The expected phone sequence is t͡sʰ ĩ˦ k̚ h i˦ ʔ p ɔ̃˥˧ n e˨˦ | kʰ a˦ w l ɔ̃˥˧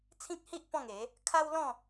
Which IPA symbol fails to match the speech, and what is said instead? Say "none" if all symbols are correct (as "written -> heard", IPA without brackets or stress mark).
n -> ŋ